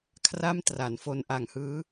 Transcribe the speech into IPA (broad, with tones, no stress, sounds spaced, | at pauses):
kʰ r a˥˩ m t r a˩˦ n f o˧ n ʔ a˨˩ ŋ h ɯː˦˥